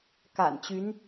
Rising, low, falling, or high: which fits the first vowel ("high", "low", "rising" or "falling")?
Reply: low